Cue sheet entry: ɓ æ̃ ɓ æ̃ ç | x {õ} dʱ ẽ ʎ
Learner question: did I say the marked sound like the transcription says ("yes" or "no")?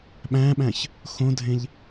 yes